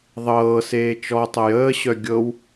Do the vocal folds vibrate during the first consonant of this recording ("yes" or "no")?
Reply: yes